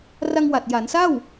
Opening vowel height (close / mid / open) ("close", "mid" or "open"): open